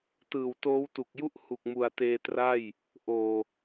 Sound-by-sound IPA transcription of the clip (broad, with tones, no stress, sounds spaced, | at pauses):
t ɯː˨˩ w t oː˦˥ w t u˨˩ k̚ j u˥˩ ʔ h u˨˩ k̚ m u˨˩ a̯ t eː˧ t r a˥˩ j | ʔ oː˨˩